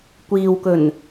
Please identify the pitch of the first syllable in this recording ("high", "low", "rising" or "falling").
low